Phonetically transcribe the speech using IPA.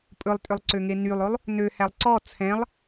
pʼ ɵ lˠ tʼ ø lˠ ǀ ø ŋ e n y lˠ o lˠ | n ø h æ lˠ ǀ ɔ t͡sʰ ɛ̃ lˠ

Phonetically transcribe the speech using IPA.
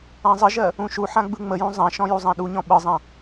ã zˤ ə ʒ ɜ | ũ ʃ u ħ ã ɡ͡b ɯ ŋ͡m ə j ũ zˤ ã ʃ ɔ̃ j u zˤ ã ɗ u ɲ ɔ̃ ɓ ɯ zˤ ã

